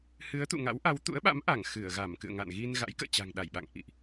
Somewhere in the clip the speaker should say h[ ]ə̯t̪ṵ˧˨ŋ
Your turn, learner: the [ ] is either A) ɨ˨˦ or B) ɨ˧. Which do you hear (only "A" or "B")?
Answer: A